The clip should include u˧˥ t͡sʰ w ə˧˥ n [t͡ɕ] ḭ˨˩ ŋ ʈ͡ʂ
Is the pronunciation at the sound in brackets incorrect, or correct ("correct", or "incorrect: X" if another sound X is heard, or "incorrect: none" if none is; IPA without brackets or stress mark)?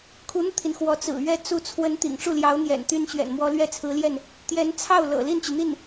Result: incorrect: t̪